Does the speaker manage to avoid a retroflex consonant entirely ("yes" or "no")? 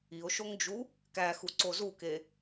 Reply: yes